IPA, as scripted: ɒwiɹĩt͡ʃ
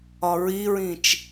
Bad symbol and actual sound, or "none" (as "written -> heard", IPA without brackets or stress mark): w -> ɹ